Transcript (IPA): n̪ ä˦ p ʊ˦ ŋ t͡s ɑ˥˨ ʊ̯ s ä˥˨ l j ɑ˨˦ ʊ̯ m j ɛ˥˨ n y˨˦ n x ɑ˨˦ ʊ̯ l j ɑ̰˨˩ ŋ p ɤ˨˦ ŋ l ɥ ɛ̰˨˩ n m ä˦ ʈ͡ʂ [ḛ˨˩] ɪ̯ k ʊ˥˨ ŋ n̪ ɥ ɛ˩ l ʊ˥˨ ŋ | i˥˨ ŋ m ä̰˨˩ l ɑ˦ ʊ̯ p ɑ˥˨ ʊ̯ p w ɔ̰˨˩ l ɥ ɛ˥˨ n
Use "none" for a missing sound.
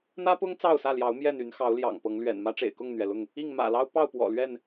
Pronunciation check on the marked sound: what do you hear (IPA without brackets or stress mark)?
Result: ḛ˨˩